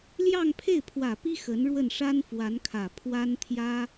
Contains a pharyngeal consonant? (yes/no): no